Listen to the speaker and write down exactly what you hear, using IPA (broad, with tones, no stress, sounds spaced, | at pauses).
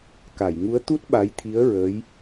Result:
k a˨˩˨ j ŋ u˧˥ ə̯ t̪ u˦˥ t̚ ɓ a˧˥ j t̪ʰ i˧˥ ə̯ ɹ ə˧˥ j